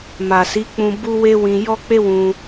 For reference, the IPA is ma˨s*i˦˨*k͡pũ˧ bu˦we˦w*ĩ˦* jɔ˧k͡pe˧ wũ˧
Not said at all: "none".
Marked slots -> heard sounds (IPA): i˨˦, ĩ˧

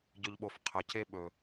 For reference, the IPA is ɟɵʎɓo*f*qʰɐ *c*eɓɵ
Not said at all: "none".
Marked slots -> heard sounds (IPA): f, c

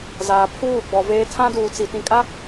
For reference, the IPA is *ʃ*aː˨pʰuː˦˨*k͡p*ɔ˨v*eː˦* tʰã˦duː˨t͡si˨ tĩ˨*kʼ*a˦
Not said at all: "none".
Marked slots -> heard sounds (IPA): z, ɡ͡b, eː˦, kʼ

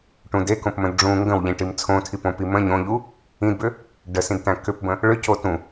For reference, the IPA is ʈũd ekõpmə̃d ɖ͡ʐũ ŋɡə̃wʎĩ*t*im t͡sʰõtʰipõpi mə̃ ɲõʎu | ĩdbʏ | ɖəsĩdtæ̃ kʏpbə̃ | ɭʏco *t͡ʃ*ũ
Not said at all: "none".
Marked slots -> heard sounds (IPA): ʈ, t

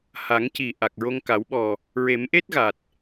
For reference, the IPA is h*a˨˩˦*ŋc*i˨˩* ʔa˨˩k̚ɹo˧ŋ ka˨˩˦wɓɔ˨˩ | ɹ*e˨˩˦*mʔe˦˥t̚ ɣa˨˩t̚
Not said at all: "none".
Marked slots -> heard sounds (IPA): a˨˩˦, i˨˩, e˨˩˦

